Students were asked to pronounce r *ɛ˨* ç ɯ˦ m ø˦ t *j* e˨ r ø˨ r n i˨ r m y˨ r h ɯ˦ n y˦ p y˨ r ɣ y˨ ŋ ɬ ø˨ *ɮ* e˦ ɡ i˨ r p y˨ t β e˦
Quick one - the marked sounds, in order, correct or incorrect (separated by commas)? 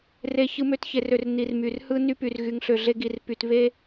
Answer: incorrect, incorrect, correct